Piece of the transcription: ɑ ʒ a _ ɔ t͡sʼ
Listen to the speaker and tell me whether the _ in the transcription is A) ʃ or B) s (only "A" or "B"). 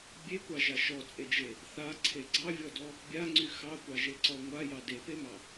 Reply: A